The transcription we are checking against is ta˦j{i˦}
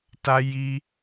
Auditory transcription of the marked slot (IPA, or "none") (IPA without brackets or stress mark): i˦